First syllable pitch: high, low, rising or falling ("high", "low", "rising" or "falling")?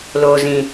low